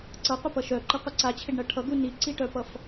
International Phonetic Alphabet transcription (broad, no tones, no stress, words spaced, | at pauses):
ǀʌqʷɪpʌ ʃœǃɪqʷʌ ǀat͡ɕʰɪɖɳʌ ʈʰʌɡu niǀiʈœpʌf